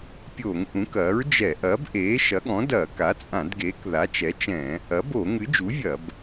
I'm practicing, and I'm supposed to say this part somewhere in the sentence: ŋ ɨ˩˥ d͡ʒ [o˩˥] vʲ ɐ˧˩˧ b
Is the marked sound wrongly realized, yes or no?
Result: yes